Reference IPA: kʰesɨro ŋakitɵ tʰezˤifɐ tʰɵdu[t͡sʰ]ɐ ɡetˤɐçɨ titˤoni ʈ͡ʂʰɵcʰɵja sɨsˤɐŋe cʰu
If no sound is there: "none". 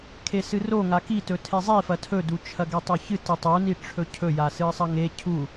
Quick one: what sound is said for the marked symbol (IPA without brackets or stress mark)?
t͡ʃʰ